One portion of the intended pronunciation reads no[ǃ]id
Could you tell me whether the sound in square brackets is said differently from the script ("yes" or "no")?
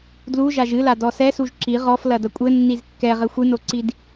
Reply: yes